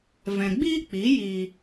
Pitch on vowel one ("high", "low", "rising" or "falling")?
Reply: low